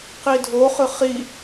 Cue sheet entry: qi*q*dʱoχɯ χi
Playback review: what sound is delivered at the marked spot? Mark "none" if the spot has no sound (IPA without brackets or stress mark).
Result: none